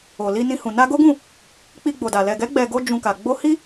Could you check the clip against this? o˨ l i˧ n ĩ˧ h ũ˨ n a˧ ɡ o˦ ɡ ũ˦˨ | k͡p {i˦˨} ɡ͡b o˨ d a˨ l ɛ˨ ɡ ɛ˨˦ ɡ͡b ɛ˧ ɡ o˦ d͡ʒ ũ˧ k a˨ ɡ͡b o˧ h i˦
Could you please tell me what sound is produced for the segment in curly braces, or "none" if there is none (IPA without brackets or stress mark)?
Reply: i˧